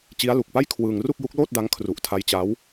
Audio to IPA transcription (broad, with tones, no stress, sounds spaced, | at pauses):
t͡ɕ i˦˥ a̯ l u˨˩ k̚ p a˥˩ j kʰ w ɯː˧ ŋ r u˥˩ k̚ j u˦˥ k̚ l oː˥˩ t̚ d a˦˥ ŋ kʰ r u˨˩ ʔ tʰ a˦˥ j t͡ɕ a˦˥ w